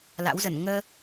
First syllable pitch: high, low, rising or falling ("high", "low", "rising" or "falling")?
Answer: rising